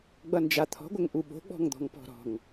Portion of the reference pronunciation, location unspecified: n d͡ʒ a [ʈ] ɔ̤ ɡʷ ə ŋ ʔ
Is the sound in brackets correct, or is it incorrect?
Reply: incorrect